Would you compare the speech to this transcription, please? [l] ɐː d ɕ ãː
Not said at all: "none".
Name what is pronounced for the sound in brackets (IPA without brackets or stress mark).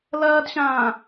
l